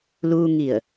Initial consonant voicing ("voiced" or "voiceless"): voiced